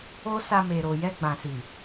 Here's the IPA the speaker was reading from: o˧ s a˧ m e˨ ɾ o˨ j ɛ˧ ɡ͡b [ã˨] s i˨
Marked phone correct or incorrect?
correct